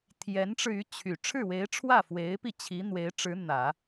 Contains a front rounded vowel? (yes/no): yes